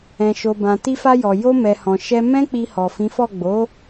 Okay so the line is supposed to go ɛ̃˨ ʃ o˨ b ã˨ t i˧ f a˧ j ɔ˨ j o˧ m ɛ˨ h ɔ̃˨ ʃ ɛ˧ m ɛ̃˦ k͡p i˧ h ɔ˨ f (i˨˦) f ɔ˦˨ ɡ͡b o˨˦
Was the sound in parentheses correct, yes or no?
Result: no